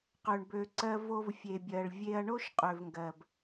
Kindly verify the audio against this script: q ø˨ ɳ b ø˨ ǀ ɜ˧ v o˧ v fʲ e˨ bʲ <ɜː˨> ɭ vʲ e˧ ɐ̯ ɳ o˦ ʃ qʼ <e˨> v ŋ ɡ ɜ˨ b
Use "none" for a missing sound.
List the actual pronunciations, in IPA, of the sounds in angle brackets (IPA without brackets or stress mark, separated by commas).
ɜ˨, ø˨